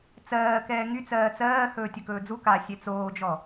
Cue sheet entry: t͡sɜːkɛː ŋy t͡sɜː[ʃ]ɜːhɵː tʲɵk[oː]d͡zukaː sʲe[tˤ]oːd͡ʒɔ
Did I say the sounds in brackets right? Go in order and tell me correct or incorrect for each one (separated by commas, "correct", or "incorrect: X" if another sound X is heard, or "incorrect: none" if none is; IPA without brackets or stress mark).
incorrect: t͡s, incorrect: ɵː, incorrect: t͡s